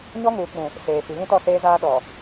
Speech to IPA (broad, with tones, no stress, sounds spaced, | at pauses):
ɲ ɔ˦ ŋ uː˨ k͡p ũ˨ | s eː˨ f i˨ β ĩ˦ t ɔ˦˨ s eː˦ z aː˦ ɗ ɔ˨